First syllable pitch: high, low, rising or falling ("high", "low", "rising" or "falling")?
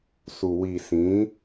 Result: low